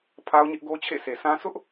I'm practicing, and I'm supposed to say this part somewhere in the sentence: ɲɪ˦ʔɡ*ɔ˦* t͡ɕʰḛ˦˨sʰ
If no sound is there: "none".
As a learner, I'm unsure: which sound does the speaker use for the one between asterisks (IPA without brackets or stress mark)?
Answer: o˦